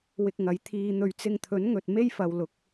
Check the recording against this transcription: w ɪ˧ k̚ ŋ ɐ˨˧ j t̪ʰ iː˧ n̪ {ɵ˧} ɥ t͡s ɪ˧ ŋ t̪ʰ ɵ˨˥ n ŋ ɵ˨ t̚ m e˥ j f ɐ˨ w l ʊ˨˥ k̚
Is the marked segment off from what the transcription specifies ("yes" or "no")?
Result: no